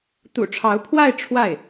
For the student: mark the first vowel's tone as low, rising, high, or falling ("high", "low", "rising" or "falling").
low